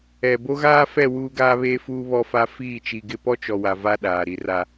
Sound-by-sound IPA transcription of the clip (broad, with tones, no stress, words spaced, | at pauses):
ɛ˨ bo˦ɣaː˦fɛ˦˨ wuː˦ɡaː˦βeː˦fuː˦ βɔ˦fa˦ fiː˦˨t͡ʃi˨ɡɪ˦ pɔ˦t͡ʃɔ˨wa˨ va˦ ɗaː˨ɾi˦ra˦